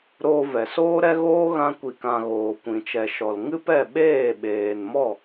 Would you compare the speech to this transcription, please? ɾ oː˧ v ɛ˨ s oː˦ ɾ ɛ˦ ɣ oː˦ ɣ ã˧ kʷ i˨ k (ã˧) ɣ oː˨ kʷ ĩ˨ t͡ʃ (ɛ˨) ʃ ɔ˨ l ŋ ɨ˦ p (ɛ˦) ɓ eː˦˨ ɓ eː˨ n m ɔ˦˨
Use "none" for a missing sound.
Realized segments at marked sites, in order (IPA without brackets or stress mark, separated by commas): ã˨, ɛ˨, ɛ˦˨